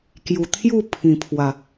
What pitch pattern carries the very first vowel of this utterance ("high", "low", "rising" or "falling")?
low